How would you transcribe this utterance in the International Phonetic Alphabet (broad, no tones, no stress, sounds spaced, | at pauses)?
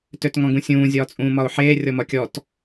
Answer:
t ø t ŋ ɔ̃ ɡ ũ sʲ ũː zʲ ɒː t͡sʼ ũː m ɒ ʊ̯ ħ eː rʲ ɔ m ɒ kʲ ɔ t